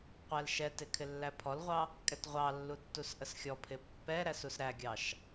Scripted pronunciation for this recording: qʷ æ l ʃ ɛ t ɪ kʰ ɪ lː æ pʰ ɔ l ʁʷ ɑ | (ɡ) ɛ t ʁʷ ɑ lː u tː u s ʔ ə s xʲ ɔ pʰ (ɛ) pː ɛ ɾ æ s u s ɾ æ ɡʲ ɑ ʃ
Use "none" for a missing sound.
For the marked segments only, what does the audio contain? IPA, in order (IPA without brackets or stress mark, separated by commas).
kʼ, ɪ